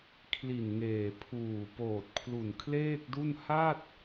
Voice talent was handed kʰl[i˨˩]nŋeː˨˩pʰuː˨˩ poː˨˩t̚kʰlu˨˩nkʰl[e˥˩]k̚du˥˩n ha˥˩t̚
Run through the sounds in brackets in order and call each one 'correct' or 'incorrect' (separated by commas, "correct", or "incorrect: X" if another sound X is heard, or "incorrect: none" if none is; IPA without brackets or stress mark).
correct, incorrect: eː˥˩